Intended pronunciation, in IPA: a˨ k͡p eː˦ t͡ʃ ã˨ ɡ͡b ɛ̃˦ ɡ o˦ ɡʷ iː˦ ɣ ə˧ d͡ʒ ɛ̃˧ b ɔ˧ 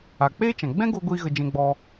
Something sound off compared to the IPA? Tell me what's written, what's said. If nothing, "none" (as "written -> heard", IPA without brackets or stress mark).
b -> ɡ͡b